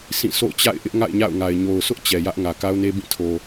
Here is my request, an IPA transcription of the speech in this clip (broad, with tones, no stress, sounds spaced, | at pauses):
s ĩ˦˨ sʰ o̰˦˨ ʊ̯ t͡ɕ a̰˦˨ ɪ̯ ʔ ɪ˦ ʔ ŋ a̰˦˨ ɪ̯ ɲ a̰˦˨ ʊ̯ ŋ a˨ ɪ̯ ɲ o˨ ʊ̯ s ʊ˦ ʔ t͡ɕ ɛ˨ j ä˦ ʔ ŋ ä˨ k a˦ ʊ̯ n e˦ b ĩ˦˨ tʰ o˨